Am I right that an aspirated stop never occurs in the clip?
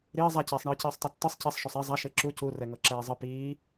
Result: yes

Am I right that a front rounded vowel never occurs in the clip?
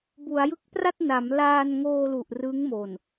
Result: yes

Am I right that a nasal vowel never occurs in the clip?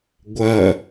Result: yes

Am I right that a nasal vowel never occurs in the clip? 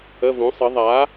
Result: no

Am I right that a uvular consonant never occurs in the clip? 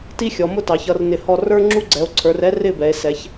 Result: yes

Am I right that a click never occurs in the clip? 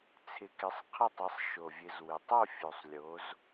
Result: yes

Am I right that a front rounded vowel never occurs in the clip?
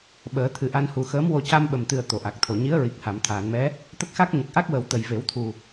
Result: yes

